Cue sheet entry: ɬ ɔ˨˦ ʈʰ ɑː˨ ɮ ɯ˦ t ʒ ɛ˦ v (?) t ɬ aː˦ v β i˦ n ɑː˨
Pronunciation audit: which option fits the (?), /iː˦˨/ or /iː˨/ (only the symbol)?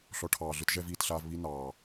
iː˦˨